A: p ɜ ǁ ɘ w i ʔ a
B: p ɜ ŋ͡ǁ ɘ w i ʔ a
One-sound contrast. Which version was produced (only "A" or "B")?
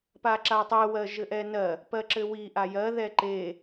A